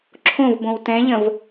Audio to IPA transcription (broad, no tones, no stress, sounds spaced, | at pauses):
ǁʰ õ v b õ w t ɛ̃ ʎ ə̃ v